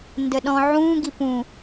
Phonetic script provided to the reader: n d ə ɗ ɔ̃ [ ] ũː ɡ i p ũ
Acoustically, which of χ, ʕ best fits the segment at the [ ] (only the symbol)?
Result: ʕ